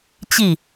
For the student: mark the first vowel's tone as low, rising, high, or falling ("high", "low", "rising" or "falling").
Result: falling